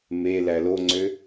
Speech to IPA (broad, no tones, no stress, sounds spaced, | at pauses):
m e l æ l o ŋ͡ǀ ø